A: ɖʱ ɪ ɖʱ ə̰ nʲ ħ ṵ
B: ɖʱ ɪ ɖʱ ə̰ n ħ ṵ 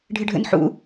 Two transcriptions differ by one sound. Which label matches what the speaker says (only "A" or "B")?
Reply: B